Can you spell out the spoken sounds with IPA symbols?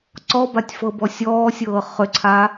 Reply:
ǀɔbatʲ fɤbɔsʲɔːsʲɤː χʏǀʰa

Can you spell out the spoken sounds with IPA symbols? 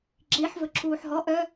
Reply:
ǁiħ vɵǁuːħɦɔ ʔœ

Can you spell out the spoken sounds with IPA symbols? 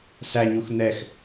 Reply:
sæɲux nɛx

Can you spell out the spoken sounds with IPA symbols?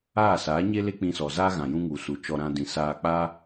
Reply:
aː˦˨saː˨˦ɲe˦le˦ k͡pĩ˧sɔ˨zaː˦ ɣã˨jũ˦ŋu˨su˨ t͡ʃɔ˧ ɾã˧dĩ˨saː˧ k͡pa˦

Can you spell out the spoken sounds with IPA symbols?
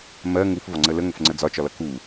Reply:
mɜ ŋufvɒŋ͡ǀə ləŋʊf ŋ͡ǀəd͡zɒt͡ʃɒlʌ ku

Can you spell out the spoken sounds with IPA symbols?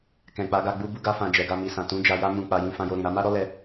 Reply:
kɛ̃˨k͡pa˨˦ɡa˧ ɡ͡bu˦bu˦ɡa˦fã˧ d͡ʒɛ˨ɡa˧mi˨sã˨ tũ˨˦d͡ʒa˧ja˦ mũ˧k͡pa˧ jĩ˧fã˧jo˧ɾĩ˨ ɾa˧ma˦ɾɔ˦ lɛ˦

